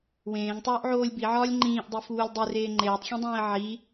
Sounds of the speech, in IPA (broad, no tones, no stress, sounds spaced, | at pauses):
w ẽː ŋ tˤ oː ʔ ʕ oː lʲ b i ʕ ɒː lʲ ŋ͡ǃ ĩː ʔ dˤ i f uː lʲ dˤ i r eː ŋ͡ǃ eː tˤ xʲ ẽ dˤ ẽː ə̯ ʕ i